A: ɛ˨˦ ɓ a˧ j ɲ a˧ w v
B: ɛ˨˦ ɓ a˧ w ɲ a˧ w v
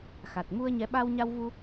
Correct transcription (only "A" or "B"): B